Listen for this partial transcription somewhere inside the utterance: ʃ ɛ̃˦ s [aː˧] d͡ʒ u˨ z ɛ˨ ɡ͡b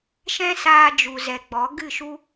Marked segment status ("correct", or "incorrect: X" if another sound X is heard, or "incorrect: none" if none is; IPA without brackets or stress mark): correct